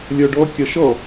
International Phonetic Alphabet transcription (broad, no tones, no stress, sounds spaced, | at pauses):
lʲ ɔ ɖ ɔ kʲ ɒ ʃ ɔ